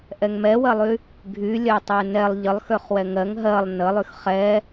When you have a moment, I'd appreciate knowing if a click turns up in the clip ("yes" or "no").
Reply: no